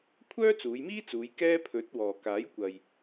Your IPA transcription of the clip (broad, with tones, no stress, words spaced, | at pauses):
kʷʰœː˥t͡suː˨˧jmiː˥t͡suː˨˧j kɛː˥pʰɵ˨˥t̚ wɔː˨kaː˨˥jkʷɐ˨j